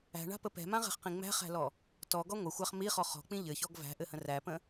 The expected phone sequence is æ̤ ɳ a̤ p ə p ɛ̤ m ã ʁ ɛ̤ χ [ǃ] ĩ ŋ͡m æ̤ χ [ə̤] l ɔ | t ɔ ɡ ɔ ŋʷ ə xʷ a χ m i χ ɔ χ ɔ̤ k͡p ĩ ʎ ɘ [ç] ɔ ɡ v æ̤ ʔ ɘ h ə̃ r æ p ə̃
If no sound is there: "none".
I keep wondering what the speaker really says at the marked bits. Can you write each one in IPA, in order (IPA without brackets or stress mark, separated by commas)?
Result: q, æ̤, ç